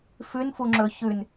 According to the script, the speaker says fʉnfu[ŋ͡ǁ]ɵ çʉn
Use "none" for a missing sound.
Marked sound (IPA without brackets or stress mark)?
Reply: ŋ͡ǁ